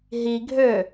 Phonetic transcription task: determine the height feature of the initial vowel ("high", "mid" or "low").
high